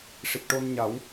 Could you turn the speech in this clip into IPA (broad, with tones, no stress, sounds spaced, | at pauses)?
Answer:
ʂ i˨˩ t̚ ʈ o˧ n ɲ a˨˩˦ w